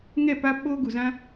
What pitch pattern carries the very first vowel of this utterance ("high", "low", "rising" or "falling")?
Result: falling